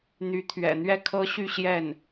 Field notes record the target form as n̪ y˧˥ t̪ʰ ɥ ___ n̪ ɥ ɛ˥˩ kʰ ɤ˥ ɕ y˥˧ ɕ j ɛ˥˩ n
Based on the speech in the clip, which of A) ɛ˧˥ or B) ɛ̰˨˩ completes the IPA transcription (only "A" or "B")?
B